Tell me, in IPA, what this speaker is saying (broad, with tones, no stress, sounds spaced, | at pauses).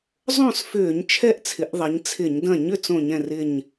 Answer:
zˤ õ˥˨ s f ʏː˧˩˧ ɲ t͡ʃʰ ɛ˥˨ ʔ t͡sʰ ɪ˩˧ ʔ ðˤ ɐ˩˧ ɲ t͡sʰ ɪ˧˩˧ ɲ d ɐ̃˥˨ ɲ ʏ˥˨ t͡s õ˥˨ ɲ ɛ̃˥˨ r ɪ˥˨ ɲ